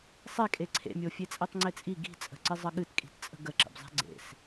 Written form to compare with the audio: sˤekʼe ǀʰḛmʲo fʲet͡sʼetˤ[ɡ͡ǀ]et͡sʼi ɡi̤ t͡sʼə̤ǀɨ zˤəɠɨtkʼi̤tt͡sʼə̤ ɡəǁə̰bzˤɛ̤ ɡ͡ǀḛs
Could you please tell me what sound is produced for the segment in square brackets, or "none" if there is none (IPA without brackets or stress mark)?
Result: ŋ͡ǀ